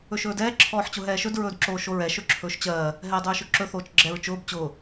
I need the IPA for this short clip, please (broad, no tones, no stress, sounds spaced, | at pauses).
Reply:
ɵ ʃ ɵː d ɛː ǁʰ ɔː ħ t͡ɕ ʊ ɦ ɛː ʃ ɵ d ɹ ɵː d ǁ oː ʃ o ɹ ɛ ʃ ɵ ǁʰ ɵː ʃ t͡ɕ ɜː | ɦ ɛː dˤ ɵː ʃ ɵ ǁ ɵ θ oː t͡ʃ ɡ͡ǁ ɛ ɹ t͡ʃ ʊː b t͡ɕ ʊː